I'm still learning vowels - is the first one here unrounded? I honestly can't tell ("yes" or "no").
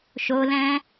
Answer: no